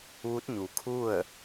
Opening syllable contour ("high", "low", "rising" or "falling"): rising